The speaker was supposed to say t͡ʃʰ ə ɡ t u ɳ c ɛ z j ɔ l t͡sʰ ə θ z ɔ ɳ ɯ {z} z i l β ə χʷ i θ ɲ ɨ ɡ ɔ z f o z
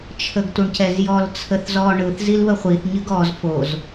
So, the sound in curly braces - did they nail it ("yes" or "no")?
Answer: no